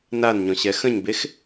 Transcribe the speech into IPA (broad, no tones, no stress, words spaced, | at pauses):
nanɲɔ̃ ɕɛxə̃ɲbex